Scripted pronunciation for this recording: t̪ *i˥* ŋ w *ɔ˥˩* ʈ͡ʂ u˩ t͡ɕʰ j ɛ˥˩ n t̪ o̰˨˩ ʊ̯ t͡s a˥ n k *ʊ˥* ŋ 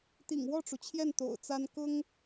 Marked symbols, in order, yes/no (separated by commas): no, yes, yes